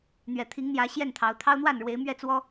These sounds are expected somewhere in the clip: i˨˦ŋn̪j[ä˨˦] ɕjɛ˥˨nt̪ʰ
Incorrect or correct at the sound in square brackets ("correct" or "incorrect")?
correct